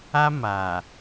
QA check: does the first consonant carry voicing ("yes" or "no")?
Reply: yes